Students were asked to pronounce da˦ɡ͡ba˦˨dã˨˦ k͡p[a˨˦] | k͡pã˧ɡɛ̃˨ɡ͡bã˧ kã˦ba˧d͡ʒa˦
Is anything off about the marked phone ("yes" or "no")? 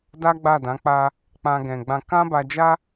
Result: yes